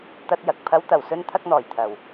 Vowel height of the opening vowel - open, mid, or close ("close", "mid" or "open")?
open